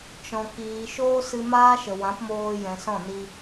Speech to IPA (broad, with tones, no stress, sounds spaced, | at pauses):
t͡ʃ ɔ̃˨ k iː˨ ʃ oː˦ s ɨ˧ m aː˦ ʃ ə˨ w ã˨˦ p m oː˧ j ɛ̃˨ s ɔ̃˦˨ n i˧